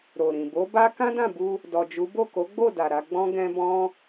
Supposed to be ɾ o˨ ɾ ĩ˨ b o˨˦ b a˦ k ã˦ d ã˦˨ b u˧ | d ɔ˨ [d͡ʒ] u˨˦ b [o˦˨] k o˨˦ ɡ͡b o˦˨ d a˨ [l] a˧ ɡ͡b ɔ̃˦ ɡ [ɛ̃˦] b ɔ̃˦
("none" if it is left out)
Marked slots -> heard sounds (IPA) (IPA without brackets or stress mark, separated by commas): d͡ʒ, o˦˨, ɾ, ɛ̃˦